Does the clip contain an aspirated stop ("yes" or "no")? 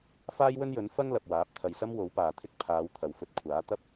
yes